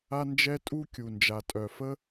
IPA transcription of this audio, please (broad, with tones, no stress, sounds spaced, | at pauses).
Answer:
a˦ n d͡ʒ ɛ˦ tʼ u˦ kʲ u˨ n d͡ʒ a˨ tʼ œ˨ f ə˦